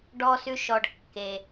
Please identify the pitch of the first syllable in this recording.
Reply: low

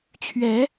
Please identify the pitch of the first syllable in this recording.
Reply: rising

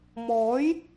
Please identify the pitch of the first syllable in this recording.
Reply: rising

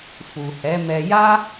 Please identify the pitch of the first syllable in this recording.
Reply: low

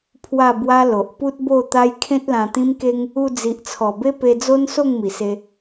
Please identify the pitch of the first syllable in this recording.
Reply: falling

